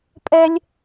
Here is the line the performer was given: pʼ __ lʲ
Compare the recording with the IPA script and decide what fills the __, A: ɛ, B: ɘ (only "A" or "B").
A